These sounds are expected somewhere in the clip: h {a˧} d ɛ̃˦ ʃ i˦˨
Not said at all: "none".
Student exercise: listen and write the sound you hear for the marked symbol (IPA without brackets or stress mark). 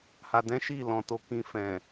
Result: a˧